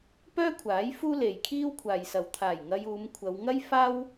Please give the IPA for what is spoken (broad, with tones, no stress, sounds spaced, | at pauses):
p œː˥ kʷʰ aː˨˥ j f uː˥ l e˨ j kʰ iː˥ w kʷʰ aː˨ j s ɐ˨ w t̪ʰ aː˨˩ j ŋ ɐ˧ j uː˨˧ m kʷʰ ɐ˨˧ w ŋ ɐ˥ j f aː˥ w